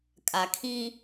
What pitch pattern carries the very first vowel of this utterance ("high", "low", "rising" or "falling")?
low